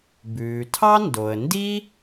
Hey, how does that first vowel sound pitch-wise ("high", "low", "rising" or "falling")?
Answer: low